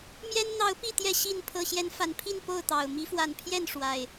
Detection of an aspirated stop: present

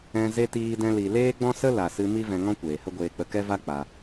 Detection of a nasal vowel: present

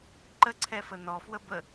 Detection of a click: present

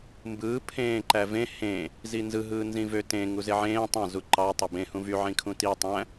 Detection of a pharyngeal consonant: present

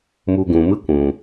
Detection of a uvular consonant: absent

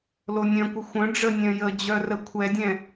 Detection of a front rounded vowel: present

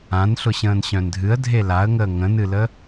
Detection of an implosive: absent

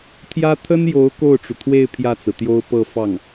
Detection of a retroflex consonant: present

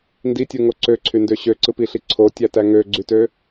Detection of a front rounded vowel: present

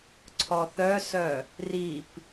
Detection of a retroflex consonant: absent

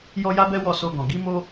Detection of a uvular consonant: absent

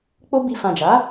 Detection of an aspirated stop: absent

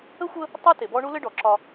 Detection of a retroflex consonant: present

